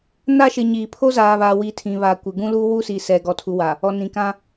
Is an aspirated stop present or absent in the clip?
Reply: present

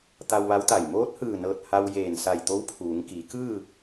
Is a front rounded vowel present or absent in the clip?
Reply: absent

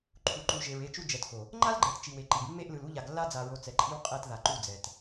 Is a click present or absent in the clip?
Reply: present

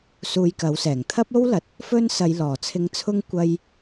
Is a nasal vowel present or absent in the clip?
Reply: absent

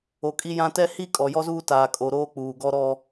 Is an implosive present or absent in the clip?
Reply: absent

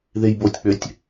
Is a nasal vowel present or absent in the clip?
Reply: absent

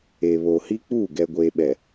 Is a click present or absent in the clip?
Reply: absent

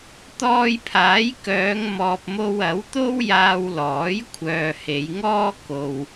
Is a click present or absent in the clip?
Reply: absent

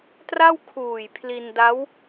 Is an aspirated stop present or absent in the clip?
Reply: present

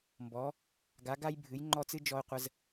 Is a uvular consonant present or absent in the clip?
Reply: present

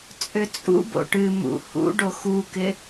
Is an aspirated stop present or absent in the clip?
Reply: absent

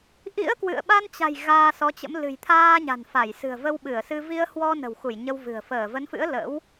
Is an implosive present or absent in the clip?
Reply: present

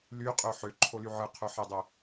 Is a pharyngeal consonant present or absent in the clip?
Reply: present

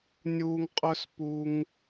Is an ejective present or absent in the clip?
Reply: present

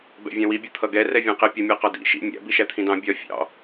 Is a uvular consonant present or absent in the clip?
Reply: present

